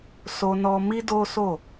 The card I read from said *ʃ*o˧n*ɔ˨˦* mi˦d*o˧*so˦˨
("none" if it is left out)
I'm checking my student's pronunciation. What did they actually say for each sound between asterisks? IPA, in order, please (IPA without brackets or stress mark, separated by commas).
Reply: s, ɔ˧, o˦